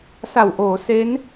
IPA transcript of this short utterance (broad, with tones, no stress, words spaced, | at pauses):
sa˨˩wʔoː˩˦ se˦˥n